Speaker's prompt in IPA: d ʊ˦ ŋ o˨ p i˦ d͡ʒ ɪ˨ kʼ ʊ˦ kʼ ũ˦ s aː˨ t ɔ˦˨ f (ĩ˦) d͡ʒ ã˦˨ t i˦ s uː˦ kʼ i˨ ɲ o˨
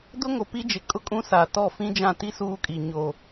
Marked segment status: correct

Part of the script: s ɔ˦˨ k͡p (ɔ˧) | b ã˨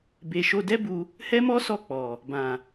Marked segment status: incorrect: ɔ˨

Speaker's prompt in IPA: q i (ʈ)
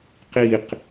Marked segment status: incorrect: q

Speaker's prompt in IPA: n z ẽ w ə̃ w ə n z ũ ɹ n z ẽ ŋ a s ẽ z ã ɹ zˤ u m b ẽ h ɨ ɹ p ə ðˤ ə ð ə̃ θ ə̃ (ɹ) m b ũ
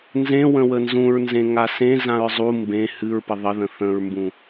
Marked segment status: correct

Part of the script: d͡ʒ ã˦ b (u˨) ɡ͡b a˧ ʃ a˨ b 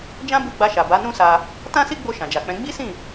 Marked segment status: incorrect: u˦˨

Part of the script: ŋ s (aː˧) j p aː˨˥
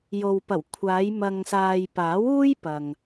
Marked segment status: incorrect: aː˨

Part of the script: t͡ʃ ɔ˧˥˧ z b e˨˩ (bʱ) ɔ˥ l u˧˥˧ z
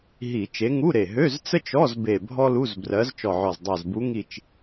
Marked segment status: correct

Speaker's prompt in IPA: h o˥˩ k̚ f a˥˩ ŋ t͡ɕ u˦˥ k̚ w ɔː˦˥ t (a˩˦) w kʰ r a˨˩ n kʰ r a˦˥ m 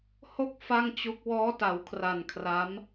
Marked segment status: correct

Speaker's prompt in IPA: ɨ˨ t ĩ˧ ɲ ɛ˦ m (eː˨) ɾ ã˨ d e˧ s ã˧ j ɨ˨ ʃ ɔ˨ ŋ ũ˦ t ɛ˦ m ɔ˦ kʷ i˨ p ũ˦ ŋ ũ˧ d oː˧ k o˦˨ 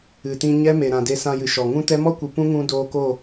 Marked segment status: incorrect: e˨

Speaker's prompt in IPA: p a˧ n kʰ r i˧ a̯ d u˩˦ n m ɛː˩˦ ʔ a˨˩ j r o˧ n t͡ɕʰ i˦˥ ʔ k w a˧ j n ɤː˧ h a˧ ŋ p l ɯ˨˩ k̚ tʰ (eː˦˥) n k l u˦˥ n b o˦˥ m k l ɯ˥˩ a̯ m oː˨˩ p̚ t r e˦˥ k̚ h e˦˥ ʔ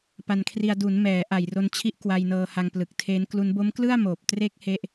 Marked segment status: correct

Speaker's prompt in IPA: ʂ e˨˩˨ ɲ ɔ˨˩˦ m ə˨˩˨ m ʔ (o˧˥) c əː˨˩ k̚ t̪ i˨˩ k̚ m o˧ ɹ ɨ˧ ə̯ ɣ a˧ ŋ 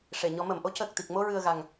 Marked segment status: correct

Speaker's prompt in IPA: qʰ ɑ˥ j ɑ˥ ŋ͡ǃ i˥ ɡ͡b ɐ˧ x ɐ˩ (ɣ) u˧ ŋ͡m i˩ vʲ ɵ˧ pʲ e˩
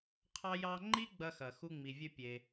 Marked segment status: incorrect: x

